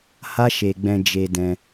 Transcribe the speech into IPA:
h a˦ ʃ e˧ ɡ͡b ɛ̃˧ d͡ʒ e˧ d ɛ̃˧

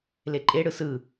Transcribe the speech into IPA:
l e ǃʼ e ɽ ɯ s ɯ

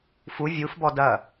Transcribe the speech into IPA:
f u vʲ u f b ɔ d ɐ

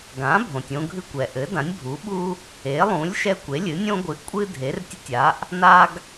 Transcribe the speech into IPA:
ɡ ã˩˥ bʱ õ˩ tʲ õ˦ ɡʱ ɨ˦ kʷ ɛ˩ ʔ ɘ˩˥ d ã˩˥ nʲ bʱ u˩˥ ɓ u˦ | e˩˥ lˠ ũ˩˥ lʲ ʃ ɛ˦ kʷ e˩˥ lʲ ɨ˩˥ nʲ õ˦ ɡʷ ɨ˩˥ ʔ kʷʼ ɨ˦ dʱ e˩˥ r tʲ ɘ˦ tʲ a˩˥ ʔ | n a˦ ɡ

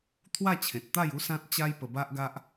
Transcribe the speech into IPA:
t̪ʰ w a˥˧ t͡ɕʰ ẽ˨ t̚ t̪ a˥˧ j u˦ s ã˦ t̚ t͡ɕ a˦ j p ə˧ b a˦ ʔ ɡ a˦ ʔ

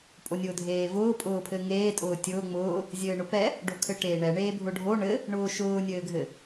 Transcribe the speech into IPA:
pʼ o nʲ ʊː dʱ eː v ʊː pʼ ʊː pʰ ɘ ŋ eː tʼ ʊː tʲ ʊː ŋ͡m ʊː | zʲ ɘː ɳ ʊ p ɛ | ɖ o kʰ ɘ ʈ eː ɳ ɛ ɳ eː bʱ ʊ ɖʱ o ɳ ɘ | ɳ ʊː ʃ ʊː nʲ ɘː ɡʱ ɘ

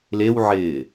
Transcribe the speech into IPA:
l e w ʕ ɪː

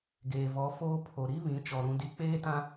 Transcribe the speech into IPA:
ɡ eː˨ v ɔ˨˦ f oː˦ pʰ o˨ ɾ i˦ β ĩ˨˦ t͡ʃ ɔ˨ ɾ ũ˨ d i˨˦ k͡p eː˦ t ã˦

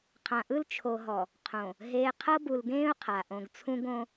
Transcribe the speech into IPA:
qʰ ã˨ ʔ ɯ˦ l t͡ʃʰ o˨ ɦ ɔ˨ | qʰ õ˨ | ɦ eː˨ qʰ ɤ˦ b u˨ l ɡ ẽː˦ ʊ̯ qʰ a˨ ʔ õ˨ ɡ t͡sʰ ũ˦ ɡ õ˦

